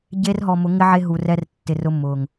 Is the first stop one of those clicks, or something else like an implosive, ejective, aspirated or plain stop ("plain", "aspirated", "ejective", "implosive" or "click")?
plain